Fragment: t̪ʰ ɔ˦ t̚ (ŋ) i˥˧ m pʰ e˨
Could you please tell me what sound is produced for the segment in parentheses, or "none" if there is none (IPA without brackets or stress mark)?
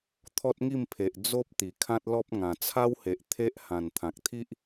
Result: ŋ